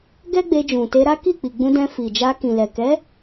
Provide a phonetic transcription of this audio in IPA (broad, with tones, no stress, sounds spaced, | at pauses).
ɡ ɛ˦ ɡ͡b e˧ d͡ʒ ũ˨ t e˧ ɾ a˦ k i˦˨ k͡p i˨ ɡ͡b ũ˧ d ɛ̃˧ f i˨ d͡ʒ a˧ k ĩ˨ l ɛ˨ k ɛ˨˦